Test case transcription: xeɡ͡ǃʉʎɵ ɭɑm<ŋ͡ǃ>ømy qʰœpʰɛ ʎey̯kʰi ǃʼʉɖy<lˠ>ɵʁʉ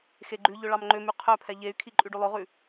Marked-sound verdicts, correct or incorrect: correct, correct

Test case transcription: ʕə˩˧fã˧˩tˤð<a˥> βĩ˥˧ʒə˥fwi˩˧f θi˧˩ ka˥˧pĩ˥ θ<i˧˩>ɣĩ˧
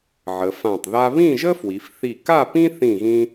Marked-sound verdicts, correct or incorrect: correct, incorrect: ĩ˧˩

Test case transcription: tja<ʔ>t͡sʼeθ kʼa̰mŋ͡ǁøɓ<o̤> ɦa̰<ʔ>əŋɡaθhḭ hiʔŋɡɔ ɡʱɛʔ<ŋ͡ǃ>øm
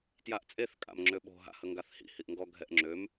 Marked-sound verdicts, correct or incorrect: correct, correct, incorrect: h, incorrect: ŋ͡ǁ

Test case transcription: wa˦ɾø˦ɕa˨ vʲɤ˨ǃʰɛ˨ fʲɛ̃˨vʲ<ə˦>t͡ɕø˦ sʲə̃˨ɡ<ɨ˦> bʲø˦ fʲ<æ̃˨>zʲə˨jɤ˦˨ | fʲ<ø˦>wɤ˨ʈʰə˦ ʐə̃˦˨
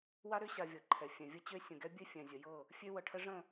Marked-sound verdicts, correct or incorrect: correct, incorrect: ɛ˦, incorrect: ɛ̃˨, correct

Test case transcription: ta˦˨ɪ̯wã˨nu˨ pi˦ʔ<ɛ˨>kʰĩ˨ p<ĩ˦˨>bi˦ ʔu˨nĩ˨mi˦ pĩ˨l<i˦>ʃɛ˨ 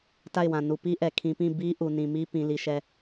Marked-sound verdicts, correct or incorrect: correct, correct, incorrect: i˨

